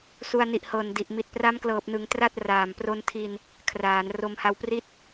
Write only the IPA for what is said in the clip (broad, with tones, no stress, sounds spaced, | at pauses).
s u˧ a̯ n i˨˩ ʔ h ɤː˨˩ n d i˨˩ ʔ m i˨˩ t̚ p r a˦˥ m k l ɤː˨˩ p̚ n ɯ˩˦ ŋ t r a˥˩ t̚ r aː˨˩ m p r o˧ n tʰ i˧ n | kʰ r aː˩˦ n r o˧ m h a˧ w p r i˥˩ t̚